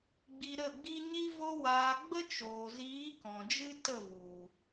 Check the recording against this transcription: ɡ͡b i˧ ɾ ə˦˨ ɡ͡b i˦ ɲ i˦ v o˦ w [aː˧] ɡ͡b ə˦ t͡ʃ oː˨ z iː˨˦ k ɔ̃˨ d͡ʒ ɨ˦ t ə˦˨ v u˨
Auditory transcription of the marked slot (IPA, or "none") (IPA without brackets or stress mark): aː˧